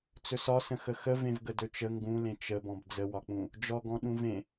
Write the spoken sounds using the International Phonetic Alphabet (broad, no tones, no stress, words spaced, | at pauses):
t͡sɵsɒsə̃ xəxə vẽvɡədɵt͡ʃə ŋɡũlẽ t͡ʃəbɔ̃b d͡zəwɒk͡pũ | d͡ʒɔɡɔ̃ ɗũvẽ